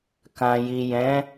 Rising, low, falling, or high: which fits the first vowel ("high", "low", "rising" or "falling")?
low